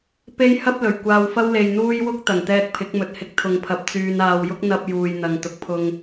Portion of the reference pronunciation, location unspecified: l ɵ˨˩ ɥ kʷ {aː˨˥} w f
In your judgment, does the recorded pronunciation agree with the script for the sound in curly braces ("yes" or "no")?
no